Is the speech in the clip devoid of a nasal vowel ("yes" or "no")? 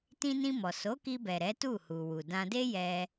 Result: no